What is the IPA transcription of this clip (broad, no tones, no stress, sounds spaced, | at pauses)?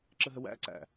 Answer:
ǁ ə ɦ ə w æ̰ ǀ æ̰